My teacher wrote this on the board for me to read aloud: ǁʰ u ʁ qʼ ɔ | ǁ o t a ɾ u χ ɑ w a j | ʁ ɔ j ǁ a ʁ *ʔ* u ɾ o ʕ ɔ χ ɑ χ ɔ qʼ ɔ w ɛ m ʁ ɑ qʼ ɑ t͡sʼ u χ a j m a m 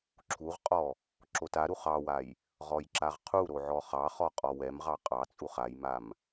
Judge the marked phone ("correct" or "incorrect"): incorrect